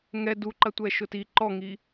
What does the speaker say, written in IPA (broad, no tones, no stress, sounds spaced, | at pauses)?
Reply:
ŋ ɛ d u ǃ ɐ tʷ ɛ ʃ ʊ t i ǃ ɔ ŋ i